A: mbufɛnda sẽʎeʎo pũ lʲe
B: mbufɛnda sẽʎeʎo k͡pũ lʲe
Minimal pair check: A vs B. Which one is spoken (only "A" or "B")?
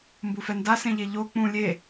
B